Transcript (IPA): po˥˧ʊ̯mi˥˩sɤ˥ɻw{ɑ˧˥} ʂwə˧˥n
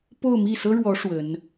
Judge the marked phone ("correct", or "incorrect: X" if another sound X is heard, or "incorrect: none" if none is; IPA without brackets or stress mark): incorrect: ɔ˧˥